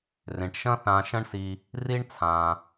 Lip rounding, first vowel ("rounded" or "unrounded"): unrounded